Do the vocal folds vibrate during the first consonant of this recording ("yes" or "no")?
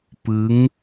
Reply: no